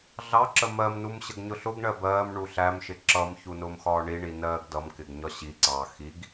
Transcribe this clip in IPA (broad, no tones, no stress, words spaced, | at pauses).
ɮɑǁə mɜmnum ɕəɡɲʊɬʊɡɳɜ bɜːm ɳuɬæmʃɪ ǁʌmçu nʊːmxɒːɳiɳi nɜːɡdʌmkɪɡ ɲɒɕiǀɑː xiɡ